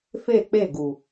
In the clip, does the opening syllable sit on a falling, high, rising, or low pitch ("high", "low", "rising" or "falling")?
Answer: falling